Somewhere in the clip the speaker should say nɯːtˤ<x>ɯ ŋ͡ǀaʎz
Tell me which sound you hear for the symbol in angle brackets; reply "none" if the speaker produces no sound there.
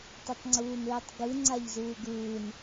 ɡ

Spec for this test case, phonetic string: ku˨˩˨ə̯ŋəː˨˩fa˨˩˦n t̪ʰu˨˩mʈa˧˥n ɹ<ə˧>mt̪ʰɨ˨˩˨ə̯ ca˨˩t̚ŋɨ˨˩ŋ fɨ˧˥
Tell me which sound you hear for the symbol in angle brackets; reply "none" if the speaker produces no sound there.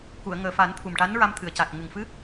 a˧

